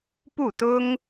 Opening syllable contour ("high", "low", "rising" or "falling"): falling